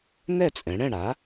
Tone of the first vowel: falling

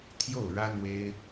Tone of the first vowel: falling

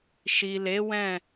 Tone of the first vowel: low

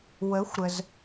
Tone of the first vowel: rising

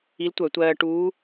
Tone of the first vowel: rising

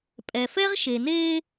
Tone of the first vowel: low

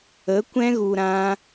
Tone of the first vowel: rising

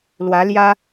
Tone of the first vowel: rising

